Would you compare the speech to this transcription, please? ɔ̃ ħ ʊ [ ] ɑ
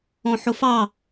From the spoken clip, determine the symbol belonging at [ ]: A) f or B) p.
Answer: A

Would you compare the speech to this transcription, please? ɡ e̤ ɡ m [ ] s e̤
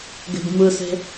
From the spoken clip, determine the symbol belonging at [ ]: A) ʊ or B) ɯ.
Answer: B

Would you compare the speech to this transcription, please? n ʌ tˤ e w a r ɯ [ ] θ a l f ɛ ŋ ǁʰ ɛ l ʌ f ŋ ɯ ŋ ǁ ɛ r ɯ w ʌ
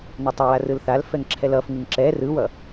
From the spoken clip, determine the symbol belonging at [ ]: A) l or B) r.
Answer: A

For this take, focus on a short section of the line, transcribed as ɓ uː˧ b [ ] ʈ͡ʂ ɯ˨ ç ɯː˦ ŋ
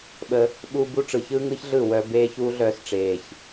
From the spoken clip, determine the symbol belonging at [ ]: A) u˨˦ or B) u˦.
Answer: B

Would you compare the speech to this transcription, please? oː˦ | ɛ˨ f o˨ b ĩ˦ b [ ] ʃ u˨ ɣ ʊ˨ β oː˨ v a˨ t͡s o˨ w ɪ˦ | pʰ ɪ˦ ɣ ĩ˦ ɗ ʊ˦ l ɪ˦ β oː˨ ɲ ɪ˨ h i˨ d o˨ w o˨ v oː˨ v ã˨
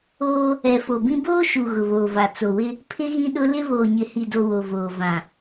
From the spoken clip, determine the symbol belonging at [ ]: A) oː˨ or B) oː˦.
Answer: B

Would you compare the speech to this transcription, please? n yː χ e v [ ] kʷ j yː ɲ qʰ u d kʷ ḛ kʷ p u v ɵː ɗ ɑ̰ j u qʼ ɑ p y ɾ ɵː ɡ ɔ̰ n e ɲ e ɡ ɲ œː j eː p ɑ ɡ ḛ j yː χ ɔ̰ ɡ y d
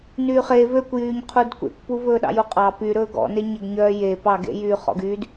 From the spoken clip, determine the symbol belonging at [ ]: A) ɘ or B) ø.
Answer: B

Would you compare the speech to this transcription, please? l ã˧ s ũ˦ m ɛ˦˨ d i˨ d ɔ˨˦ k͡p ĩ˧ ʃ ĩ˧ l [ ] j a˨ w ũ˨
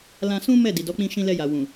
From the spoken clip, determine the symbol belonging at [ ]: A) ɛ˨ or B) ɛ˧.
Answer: B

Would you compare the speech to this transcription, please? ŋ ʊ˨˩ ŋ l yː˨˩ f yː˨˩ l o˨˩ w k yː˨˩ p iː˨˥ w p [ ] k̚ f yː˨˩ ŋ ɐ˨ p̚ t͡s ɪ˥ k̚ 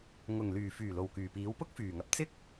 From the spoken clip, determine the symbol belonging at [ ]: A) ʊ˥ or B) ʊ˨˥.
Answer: A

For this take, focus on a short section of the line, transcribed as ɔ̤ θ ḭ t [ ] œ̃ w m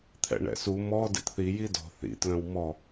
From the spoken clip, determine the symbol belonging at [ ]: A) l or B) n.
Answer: A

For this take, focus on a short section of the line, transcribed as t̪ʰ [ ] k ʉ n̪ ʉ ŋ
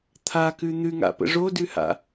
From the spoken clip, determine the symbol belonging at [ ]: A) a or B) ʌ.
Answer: A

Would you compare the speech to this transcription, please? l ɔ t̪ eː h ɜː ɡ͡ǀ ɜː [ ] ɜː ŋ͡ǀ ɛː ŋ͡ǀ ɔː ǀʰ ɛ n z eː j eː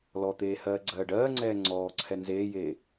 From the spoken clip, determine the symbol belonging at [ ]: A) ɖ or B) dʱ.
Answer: A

